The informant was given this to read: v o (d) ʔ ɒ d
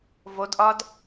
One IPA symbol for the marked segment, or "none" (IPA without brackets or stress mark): d